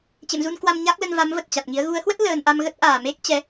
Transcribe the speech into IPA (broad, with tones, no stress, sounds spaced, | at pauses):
t͡ɕ ḛ˧˨ m z u˧ n k w a˧ m ɲ aː˦˥ k̚ l ə˧ n v a˨˦ m v ə˨˩ t̚ t͡ɕ a˨˩ t̚ ŋ i˨˦ ə̯ ɣ u˨˦ ə̯ h w ə˦˥ t̚ l əː˧ n ʔ a˧ m ɣ ə˦˥ t̚ ʔ aː˨˩ m e˦˥ k̚ t͡ɕ ɛ˨˦